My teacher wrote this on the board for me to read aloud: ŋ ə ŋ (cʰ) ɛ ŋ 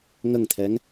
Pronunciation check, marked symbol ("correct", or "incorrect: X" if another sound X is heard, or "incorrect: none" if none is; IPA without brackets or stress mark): incorrect: t̪ʰ